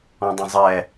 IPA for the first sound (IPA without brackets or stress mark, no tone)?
ɔ̃